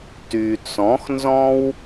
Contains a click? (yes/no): no